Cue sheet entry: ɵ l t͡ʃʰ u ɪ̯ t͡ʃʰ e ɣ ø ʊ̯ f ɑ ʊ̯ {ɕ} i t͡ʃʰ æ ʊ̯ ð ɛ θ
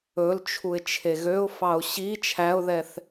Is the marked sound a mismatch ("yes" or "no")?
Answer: no